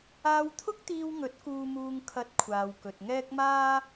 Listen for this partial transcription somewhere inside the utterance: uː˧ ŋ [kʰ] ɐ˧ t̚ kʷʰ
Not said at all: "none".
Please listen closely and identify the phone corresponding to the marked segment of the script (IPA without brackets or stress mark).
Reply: kʰ